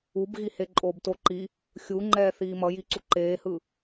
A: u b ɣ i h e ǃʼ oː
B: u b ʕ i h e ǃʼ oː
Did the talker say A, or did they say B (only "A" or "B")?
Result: A